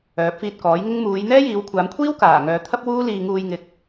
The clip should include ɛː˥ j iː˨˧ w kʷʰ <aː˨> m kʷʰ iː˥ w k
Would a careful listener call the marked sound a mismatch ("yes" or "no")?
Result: yes